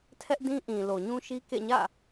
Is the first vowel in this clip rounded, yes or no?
no